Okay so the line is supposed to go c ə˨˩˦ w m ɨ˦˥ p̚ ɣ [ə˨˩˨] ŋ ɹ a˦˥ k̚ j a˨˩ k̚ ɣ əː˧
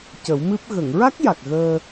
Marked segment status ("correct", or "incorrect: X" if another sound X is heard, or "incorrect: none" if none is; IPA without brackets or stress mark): correct